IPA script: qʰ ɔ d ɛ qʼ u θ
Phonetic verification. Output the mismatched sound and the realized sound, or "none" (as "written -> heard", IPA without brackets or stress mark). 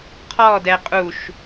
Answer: θ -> ʃ